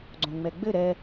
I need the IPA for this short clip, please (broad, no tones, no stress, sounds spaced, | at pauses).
ɡ͡ǀ õ ŋ͡m ɛ ɡ͡b ɘ ɾ ɛ